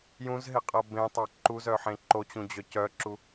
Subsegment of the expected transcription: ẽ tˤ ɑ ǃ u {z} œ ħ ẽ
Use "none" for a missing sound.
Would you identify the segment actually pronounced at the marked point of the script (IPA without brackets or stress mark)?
z